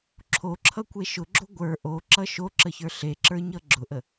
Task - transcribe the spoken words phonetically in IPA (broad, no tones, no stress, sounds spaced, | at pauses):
ǁʰ o ǁʰ ʌ kʷ e ʃ ʊ ɡ͡ǁ o ɡʷ ə˞ ʔ o ǁ ʌ ʃ o ǁ ə ç ə˞ ɬ e ǁ ə˞ ɲ ʌ ɡ͡ǁ ʊ ʔ ə